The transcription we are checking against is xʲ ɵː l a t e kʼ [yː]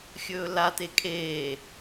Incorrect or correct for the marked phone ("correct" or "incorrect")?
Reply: incorrect